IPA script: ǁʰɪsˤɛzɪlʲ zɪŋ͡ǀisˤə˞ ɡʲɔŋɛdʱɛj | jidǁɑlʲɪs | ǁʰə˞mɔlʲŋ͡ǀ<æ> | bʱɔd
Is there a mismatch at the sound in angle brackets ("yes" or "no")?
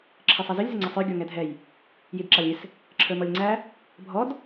no